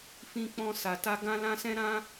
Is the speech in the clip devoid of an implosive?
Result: yes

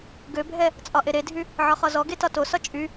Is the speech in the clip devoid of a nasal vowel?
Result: yes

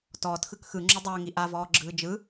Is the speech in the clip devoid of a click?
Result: no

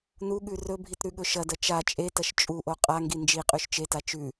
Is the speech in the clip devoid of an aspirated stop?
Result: yes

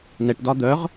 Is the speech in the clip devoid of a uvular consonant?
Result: no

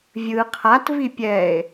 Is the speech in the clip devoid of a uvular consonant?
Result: no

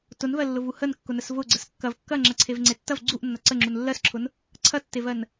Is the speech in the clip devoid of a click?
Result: no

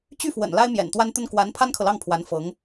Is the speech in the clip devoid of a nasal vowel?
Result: yes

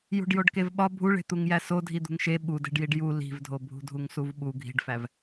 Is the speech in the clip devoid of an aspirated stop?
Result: yes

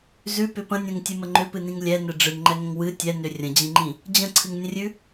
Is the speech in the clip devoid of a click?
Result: no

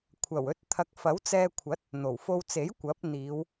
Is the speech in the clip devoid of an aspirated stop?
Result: no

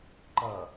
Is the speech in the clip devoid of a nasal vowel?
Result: yes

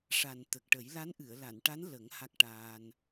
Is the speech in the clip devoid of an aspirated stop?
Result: yes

